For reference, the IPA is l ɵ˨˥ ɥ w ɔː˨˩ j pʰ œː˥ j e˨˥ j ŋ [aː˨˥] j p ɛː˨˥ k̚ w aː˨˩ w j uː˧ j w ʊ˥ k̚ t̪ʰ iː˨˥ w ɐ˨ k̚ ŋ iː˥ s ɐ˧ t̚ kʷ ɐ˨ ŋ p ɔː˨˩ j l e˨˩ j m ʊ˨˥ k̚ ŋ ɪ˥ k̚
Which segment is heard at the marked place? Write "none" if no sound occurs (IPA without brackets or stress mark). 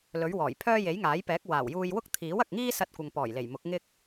aː˨˥